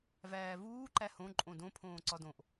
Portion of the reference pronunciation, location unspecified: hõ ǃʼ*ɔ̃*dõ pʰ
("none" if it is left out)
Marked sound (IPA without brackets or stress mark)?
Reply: õ